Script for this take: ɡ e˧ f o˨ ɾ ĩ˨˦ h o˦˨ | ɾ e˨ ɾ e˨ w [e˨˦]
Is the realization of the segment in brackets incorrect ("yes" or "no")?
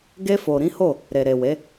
no